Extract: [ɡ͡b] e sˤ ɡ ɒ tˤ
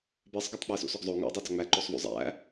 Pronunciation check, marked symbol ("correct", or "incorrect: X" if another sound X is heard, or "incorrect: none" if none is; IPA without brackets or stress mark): incorrect: b